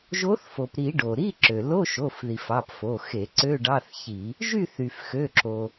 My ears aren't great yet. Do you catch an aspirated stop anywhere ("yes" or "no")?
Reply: no